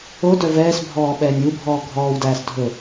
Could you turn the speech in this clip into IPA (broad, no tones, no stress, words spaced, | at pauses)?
o dœvɛːsbʱɔː ɓɛːnʲwubʱɔː ɡʱɔːwdæːs dʱɵ